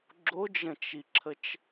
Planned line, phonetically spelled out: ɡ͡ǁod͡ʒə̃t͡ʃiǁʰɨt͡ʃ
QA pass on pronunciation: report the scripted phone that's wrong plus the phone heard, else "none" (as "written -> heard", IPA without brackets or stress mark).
ɨ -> ə